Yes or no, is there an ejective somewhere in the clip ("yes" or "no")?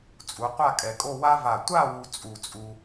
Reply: yes